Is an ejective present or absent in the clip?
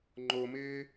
absent